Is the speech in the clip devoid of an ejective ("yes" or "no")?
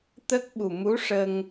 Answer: yes